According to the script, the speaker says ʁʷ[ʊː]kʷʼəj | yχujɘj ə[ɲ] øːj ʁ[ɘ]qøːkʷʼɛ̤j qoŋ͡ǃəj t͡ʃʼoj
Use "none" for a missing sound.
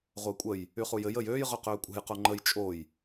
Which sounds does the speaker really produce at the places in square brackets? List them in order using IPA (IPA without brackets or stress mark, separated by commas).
əː, j, ø